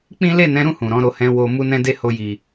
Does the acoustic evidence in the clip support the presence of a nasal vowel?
yes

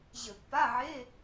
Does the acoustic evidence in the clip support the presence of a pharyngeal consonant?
yes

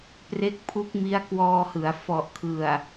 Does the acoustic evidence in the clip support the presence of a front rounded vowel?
no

